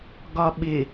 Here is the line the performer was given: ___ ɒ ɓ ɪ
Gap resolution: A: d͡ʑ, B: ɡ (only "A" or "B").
B